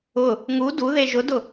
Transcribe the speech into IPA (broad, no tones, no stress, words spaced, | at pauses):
ʊ | ŋu duðe ʒʊdʊ